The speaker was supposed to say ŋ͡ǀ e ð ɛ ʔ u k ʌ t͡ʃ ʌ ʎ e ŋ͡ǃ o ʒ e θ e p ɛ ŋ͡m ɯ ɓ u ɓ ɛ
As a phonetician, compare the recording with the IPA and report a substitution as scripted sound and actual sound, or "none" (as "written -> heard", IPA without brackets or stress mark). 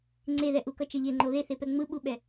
ʒ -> ð